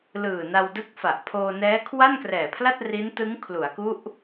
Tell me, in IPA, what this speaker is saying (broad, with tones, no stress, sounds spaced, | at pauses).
l ɯː˨˩ n a˧ w d ɯ˦˥ k̚ f a˨˩ ʔ pʰ oː˧ n ɛː˦˥ kʰ w a˥˩ n k r ɛː˨˩ pʰ l a˥˩ t̚ r i˦˥ n t ɯ˦˥ ŋ kʰ l u˩˦ a̯ k u˦˥ ʔ